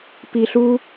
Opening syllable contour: high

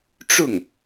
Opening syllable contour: falling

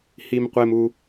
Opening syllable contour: high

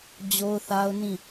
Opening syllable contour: high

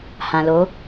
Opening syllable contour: low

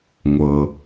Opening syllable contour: low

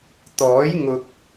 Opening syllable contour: rising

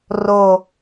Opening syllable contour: low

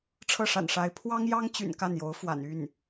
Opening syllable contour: falling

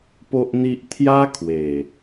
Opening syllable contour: high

